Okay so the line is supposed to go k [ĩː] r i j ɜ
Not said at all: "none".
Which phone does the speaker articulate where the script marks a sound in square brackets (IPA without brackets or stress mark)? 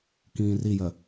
ĩː